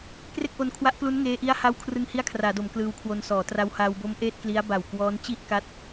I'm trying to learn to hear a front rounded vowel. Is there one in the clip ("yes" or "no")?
no